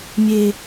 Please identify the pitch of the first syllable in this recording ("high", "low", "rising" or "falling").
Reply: low